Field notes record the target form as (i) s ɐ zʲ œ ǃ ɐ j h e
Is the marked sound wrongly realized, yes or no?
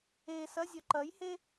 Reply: yes